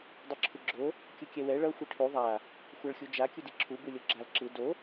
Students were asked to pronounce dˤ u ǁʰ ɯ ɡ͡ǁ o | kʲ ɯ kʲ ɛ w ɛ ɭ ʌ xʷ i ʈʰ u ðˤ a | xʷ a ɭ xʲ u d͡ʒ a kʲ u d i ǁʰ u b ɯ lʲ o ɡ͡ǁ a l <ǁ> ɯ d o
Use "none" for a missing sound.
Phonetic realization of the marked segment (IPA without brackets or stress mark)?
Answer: ǁ